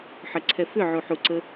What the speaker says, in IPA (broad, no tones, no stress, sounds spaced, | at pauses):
ħ ə ǀʰ ɛ f ʏ ʕ u ħ u ǀ ə